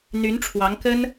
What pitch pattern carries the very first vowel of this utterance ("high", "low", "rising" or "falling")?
rising